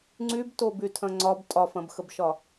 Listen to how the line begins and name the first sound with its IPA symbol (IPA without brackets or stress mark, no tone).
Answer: ŋ͡ǀ